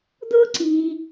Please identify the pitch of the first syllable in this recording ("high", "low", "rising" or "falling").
high